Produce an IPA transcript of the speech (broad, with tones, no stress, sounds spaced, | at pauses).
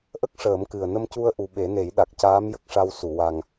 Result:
ʔ ə˦˥ k̚ ʂ əː˨˩˦ m k ɨ˨˩ ə̯ n ə˧ m c u˧ ə̯ ʔ u˨˩ ɓ e˨˩˦ n e˨˩˦ j ɗ a˨˩ k̚ c aː˧˥ m j ə˦˥ k̚ ʂ a˧ w s u˨˩˨ w a˨˩ ŋ